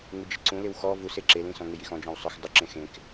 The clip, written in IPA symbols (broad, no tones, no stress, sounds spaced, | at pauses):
ŋ u d͡ʒ ɪ ǀ ũ l ɪ w x ɔ v u s e ǁ e l ĩ s ɔ̃ ŋ ɪ j i x ɔ̃ d͡ʒ ɔ̃ w sˤ ʊ x dˤ ʊ ǁ ẽ x ẽ k